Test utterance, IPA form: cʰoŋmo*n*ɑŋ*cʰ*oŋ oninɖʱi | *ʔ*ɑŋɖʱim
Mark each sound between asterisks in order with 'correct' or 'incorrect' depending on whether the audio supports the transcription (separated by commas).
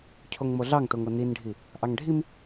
incorrect, incorrect, correct